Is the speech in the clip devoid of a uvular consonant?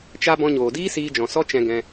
yes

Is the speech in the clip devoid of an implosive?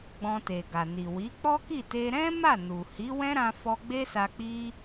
yes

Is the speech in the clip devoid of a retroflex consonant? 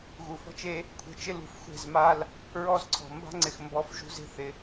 yes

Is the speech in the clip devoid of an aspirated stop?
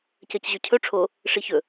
no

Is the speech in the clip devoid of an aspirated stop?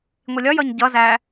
yes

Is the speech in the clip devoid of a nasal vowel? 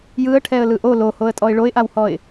yes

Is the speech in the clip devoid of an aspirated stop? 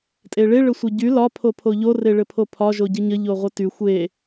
no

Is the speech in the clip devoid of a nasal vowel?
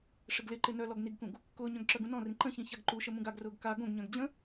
no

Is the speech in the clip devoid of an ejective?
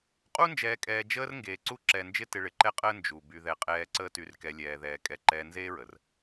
no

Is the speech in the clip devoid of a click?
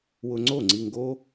no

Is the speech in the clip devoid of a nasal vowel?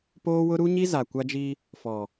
yes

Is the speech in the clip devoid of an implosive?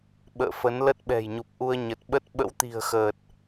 no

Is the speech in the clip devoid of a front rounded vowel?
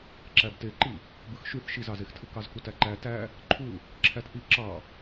no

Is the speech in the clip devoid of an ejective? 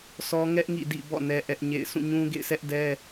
yes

